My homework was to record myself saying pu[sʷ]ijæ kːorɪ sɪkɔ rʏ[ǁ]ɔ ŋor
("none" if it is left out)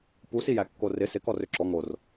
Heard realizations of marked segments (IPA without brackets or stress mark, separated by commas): s, ǁ